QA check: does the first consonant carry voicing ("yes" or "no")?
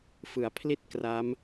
no